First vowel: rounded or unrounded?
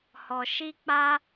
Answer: rounded